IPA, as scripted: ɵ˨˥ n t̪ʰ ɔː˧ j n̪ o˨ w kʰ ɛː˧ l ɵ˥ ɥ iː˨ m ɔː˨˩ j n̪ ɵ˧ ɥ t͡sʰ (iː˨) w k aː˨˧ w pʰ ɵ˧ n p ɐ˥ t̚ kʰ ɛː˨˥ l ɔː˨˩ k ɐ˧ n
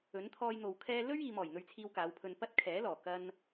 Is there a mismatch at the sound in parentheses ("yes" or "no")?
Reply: yes